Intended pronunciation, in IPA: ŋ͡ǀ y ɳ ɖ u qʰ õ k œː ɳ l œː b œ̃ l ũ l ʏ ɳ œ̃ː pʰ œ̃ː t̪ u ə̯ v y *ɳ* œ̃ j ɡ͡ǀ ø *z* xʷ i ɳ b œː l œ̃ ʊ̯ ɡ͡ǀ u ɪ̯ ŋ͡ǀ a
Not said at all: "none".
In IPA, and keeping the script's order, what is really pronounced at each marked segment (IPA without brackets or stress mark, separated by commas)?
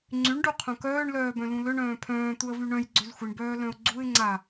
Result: ɳ, z